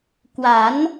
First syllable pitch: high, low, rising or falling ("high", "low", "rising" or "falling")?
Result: rising